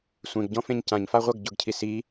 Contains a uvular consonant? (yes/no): yes